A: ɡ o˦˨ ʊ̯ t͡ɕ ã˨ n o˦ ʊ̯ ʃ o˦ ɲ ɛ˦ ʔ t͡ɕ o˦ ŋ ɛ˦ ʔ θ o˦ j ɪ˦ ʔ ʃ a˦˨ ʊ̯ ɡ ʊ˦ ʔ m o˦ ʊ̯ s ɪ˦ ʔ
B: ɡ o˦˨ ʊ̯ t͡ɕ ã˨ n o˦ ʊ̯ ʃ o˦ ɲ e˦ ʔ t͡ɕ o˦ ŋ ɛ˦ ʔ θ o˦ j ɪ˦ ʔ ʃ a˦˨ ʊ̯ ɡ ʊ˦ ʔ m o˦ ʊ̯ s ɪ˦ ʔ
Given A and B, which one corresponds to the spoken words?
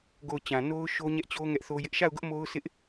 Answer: A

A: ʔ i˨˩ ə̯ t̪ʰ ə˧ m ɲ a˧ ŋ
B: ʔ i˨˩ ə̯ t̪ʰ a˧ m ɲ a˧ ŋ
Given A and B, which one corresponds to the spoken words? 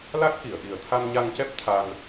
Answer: B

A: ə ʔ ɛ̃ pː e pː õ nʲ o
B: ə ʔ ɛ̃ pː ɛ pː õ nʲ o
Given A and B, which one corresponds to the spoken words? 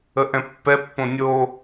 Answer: B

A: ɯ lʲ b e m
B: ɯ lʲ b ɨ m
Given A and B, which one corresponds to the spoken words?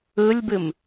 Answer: B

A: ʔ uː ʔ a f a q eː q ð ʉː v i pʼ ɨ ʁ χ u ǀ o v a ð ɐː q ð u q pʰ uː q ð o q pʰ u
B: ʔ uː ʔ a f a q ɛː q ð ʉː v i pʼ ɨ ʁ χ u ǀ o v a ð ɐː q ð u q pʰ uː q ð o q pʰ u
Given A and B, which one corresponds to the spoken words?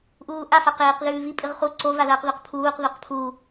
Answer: A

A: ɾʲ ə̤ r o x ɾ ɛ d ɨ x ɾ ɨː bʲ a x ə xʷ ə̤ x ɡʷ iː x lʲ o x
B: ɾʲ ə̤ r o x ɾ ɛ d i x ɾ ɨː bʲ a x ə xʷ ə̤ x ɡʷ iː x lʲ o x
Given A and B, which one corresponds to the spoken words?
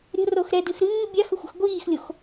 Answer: A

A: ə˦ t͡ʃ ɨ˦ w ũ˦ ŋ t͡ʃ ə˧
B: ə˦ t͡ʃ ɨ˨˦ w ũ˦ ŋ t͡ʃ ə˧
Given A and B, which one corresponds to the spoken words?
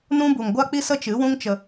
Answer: B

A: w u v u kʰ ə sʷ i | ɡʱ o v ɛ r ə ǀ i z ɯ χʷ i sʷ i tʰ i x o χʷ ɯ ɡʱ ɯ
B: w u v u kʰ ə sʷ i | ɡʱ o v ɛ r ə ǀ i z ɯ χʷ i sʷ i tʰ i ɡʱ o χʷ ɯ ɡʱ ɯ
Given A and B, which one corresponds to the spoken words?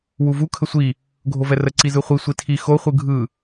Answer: A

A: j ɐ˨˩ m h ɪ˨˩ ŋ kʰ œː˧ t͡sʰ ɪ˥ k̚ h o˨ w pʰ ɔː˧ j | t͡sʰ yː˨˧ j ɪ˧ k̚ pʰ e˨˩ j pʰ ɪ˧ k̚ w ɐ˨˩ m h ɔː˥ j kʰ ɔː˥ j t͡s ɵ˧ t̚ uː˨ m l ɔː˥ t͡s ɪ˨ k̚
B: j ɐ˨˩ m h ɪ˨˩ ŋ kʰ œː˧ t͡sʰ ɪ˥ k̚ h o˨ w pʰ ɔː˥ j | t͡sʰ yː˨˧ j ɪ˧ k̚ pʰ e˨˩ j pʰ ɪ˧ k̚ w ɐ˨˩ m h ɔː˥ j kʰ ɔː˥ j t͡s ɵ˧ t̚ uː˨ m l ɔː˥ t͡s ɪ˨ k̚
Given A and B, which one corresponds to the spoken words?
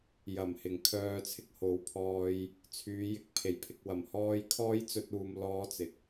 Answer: A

